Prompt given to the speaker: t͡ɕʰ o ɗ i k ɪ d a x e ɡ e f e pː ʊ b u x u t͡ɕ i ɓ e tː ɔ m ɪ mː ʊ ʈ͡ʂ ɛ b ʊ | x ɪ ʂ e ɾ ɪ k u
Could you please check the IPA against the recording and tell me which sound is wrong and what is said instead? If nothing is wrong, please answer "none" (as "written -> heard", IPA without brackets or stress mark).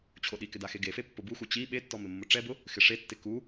ɾ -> tː